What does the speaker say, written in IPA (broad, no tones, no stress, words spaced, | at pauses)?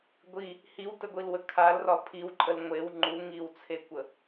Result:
ɡʷi | hiwtəɡʷilwə kʰalrɒ pʰiwǃʼəl ŋʷew ŋ͡ǃuŋiwt͡sʰekʷə